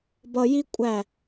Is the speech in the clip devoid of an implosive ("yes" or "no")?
yes